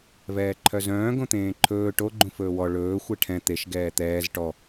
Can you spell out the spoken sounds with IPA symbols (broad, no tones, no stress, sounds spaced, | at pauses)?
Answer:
v ɛː ǃʰ œ z œ̃ː ɡ õ t̪ ẽː ǃʰ ɵː ʈ o ɡ͡ǃ ũ f ɵː w ɔ ɭ ɵː xʷ ɛ ʈʰ ɛ̃ t̪ e ʃ ɡ ɛː t̪ ɛː z ʈ ɔ